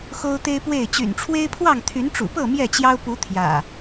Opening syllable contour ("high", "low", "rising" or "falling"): high